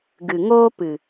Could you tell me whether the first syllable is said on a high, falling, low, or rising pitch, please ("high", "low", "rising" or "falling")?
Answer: low